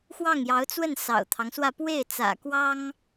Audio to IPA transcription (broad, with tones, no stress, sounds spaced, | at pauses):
x w ɑ˥˩ ŋ j ɑ˧˥ ʊ̯ t͡s w ə˥˩ n s ɑ̰˨˩ ʊ̯ t̪ʰ ɑ˦ ŋ s w ä˥˧ p w e˥˩ ɪ̯ t͡s ä̰˨˩ k w ɑ˥ ŋ